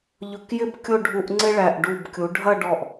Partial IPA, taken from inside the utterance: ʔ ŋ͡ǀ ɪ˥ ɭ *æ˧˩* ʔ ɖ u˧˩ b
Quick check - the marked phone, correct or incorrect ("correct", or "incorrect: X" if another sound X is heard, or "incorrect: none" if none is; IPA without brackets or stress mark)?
correct